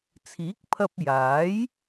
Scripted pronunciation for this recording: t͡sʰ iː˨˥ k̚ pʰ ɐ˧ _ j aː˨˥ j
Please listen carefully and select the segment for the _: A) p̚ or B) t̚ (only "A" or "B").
A